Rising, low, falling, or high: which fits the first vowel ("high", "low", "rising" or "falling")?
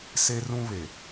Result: high